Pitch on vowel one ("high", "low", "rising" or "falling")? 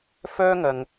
high